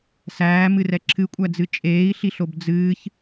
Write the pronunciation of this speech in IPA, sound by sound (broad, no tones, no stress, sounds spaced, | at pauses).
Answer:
s æː m ɨ r ɛ ǁʰ ɨ kʷʼ æ d͡z ɨ t͡ʃʼ eː i̯ ɬ i ɬ o b d͡z ɨː ç